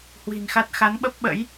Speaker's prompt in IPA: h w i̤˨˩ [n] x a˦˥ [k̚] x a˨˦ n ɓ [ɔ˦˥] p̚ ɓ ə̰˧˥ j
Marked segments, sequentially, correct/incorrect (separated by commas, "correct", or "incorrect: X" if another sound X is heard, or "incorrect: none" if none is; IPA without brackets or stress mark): correct, incorrect: t̚, incorrect: ə˦˥